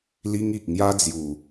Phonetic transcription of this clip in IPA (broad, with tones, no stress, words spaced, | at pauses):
li˦ŋi˨k̚ ŋja˦d͡zju˨˩